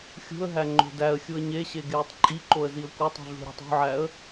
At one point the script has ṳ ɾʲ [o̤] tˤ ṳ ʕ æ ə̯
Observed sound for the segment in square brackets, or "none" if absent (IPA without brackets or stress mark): ṳ